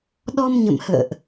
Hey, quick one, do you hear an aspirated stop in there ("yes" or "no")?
no